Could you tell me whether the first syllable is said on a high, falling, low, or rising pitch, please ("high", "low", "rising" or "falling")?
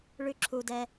high